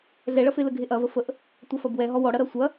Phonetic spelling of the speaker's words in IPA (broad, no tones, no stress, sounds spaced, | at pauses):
ɮ ɛ ɭ ɐ f e l ə ɡʱ e ʔ ɐ v ə f ə ʔ | tʷ ɐ f ɐ b w ɛ ɦ ɔ w ɔ ɽ ɐ ɾ ɐ sʷ ɐ